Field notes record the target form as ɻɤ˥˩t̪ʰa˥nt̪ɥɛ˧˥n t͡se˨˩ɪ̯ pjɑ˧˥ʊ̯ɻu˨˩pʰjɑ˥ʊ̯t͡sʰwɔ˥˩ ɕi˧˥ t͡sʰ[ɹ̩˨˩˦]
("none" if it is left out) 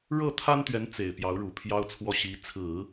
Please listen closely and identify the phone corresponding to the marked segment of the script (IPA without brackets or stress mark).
ɹ̩˨˩˦